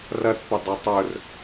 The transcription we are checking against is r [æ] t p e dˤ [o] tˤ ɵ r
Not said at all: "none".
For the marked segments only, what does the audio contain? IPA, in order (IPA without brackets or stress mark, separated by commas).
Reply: ɐ, o